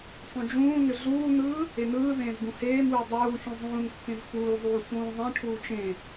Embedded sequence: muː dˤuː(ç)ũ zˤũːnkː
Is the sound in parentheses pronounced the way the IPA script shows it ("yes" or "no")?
yes